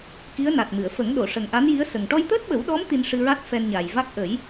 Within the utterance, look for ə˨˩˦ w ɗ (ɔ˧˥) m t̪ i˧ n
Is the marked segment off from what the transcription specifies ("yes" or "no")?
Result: no